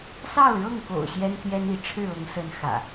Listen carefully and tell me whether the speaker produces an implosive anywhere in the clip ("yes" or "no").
no